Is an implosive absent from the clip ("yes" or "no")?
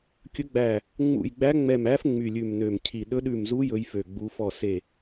no